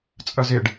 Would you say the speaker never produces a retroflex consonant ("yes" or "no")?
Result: no